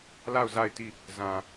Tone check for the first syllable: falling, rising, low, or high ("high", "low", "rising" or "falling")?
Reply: falling